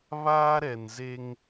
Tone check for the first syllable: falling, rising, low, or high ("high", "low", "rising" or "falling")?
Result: high